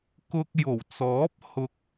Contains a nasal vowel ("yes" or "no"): no